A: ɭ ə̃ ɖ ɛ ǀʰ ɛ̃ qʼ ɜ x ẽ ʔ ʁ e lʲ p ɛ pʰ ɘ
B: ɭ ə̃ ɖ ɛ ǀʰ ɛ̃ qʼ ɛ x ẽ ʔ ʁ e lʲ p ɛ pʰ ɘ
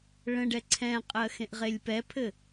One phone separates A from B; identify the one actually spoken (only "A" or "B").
A